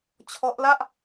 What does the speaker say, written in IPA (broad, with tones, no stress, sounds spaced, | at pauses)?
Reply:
t͡ɕʰ ɔ˦˥ ʔ l a˥˩ ʔ